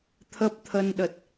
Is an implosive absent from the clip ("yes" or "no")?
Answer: no